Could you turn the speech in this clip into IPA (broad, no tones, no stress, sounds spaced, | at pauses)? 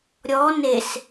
ɾʲ ɔ n e s